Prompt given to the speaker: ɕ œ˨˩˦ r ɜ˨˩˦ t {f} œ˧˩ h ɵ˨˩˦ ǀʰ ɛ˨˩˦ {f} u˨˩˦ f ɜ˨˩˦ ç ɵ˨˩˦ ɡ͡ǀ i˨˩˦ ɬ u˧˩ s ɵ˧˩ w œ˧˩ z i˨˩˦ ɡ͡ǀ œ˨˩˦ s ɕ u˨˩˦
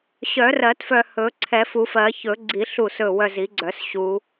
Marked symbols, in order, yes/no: yes, yes

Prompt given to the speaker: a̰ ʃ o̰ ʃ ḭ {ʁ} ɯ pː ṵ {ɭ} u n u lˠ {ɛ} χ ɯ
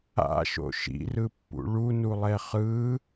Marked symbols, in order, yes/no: no, yes, yes

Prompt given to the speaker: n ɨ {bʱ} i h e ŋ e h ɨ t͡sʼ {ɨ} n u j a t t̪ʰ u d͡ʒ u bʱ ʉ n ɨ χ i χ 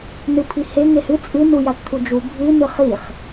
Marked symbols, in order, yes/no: no, yes

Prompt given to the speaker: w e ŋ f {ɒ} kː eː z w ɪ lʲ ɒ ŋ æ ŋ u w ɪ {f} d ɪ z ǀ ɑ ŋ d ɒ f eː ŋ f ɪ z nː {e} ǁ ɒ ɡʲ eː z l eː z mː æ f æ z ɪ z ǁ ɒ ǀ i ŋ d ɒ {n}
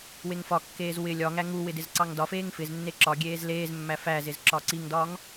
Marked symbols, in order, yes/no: yes, no, yes, no

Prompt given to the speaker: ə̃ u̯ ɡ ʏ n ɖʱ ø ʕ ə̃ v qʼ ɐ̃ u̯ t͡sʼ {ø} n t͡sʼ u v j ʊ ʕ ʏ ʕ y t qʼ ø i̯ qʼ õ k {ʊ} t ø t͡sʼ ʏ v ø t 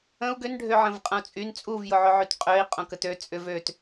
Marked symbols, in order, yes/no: no, no

